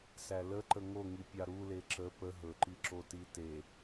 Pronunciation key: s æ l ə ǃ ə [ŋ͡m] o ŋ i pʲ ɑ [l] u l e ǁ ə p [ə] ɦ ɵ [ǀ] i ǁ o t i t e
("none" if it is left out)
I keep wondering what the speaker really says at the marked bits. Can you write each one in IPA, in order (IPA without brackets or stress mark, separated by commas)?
ŋ, ɾ, ə, ǃ